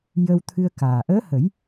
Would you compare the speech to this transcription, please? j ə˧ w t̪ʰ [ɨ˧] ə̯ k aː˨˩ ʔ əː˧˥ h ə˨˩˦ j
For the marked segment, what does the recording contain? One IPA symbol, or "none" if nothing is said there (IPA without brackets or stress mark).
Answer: ɨ˧